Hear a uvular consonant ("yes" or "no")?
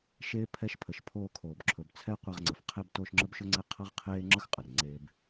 yes